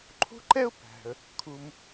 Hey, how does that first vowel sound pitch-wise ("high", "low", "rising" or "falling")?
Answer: high